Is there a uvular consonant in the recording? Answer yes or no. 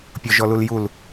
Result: no